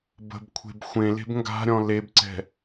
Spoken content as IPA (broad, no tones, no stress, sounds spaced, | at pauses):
b ə̤ b kʷʰ e̤ b xʷ ẽ l e̤ b ŋ ɡ a̤ ɾʲ ɔ̃ l e b ǀ ɛ̤